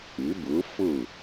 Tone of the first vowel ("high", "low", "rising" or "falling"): rising